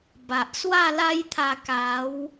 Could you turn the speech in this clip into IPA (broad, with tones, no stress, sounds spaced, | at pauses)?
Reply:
b a˨ ʔ s w a˥˧ l a˦ j t̪ʰ a˧ k a˨˦ w